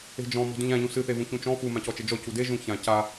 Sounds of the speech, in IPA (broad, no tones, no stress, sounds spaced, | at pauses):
e̤ d͡ʒ ɔ̃ m ɔ̤ d ũ ʎ ã ʎ ũ s ɨ θ e v ũ ç ũ t͡ʃ ɔ̃ f u m ã c ɔ t͡ʃ ɘ d͡ʒ ɔ c u d e ʒ ũ ç ã c a